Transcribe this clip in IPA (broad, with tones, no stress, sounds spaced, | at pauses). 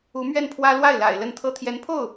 u˧˥ m ɥ ɛ˥˩ n pʰ w ä˥ l w a˥˩ ɪ̯ l a̰˨˩ ɪ̯ l ə˥˩ n t̪ʰ ɤ˥ t̪ʰ j ɛ˧˥ n pʰ o˥˩ ʊ̯